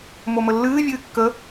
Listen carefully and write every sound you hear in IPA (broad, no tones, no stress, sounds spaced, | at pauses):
m o m ə lː ɨː vʲ ɨː kː ə